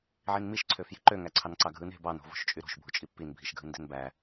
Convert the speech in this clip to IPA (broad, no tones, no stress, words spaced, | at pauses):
ʕinmiʃ ǀʰøfji̤ǃø ŋæǀʰɑnǀɑɡʱɯn e̤bɑn o̤vo̤ʃt͡ʃʼyɾo̤ʃ bʱut͡ʃʼipːin bʱiʃɡʱɯnde̤nbæ